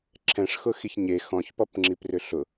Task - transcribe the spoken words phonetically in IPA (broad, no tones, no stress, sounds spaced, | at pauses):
ǁʰ ɛ̃ ʂ x ʊ x i ç ɲ e x ɔ̃ ç p ɔ p ŋ͡ǁ i p r ʏ ɬ ʊ